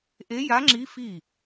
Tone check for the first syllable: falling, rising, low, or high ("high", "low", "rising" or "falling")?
rising